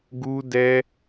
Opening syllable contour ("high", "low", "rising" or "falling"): high